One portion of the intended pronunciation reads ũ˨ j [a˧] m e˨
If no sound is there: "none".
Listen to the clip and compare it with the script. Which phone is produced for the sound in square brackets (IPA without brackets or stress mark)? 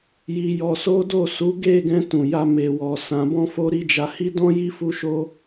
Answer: a˧